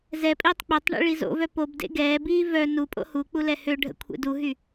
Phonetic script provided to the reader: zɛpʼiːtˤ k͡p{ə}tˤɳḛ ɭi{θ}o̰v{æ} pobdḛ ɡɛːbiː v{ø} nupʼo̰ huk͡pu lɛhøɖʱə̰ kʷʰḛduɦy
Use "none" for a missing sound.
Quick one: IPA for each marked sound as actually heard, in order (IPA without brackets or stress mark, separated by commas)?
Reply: ø, z, œ, œ